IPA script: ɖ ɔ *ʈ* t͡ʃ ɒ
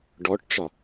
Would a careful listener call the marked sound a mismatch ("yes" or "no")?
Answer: no